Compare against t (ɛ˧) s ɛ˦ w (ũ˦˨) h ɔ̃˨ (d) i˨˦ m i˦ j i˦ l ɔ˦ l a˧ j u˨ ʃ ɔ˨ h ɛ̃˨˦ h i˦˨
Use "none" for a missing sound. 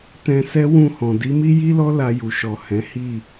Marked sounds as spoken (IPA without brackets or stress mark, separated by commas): ɛ̃˧, ũ˦˨, d